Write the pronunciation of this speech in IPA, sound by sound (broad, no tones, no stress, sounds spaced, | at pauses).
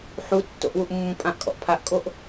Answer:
ħ u tː o̰ ʔ w u ʔ mː ũ pʼ ã ʔ kʼ ɔ̰ ʔ pʰ a ʔ kʼ o ʔ